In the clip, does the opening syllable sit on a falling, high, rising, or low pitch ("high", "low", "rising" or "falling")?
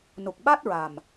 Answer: low